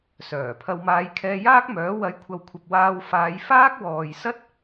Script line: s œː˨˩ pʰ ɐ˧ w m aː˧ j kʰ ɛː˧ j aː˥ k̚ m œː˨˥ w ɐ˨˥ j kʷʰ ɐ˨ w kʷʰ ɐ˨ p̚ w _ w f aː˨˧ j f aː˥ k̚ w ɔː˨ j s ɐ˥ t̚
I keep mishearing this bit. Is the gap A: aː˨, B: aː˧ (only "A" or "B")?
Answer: B